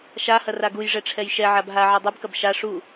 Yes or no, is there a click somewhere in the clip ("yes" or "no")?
no